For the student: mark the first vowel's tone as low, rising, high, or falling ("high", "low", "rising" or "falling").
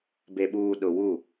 low